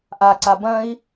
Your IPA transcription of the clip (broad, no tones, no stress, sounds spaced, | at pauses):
ʔ a ǀ a b ɐ̃ i̯